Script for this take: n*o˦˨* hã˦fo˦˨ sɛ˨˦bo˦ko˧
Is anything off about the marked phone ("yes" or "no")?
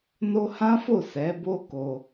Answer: yes